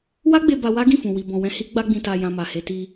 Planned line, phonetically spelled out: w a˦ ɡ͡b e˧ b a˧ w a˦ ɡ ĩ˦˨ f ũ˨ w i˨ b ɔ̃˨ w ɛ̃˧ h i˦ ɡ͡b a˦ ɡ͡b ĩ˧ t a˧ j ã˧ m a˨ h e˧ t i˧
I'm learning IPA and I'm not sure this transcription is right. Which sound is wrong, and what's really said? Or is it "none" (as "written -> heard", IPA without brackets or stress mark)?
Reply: none